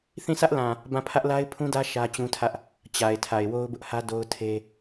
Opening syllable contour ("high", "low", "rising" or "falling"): falling